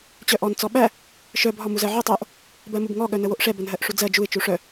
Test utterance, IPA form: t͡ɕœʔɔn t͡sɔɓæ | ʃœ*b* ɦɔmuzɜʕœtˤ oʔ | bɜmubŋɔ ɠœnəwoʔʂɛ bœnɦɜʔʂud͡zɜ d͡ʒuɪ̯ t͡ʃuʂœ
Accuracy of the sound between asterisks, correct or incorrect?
correct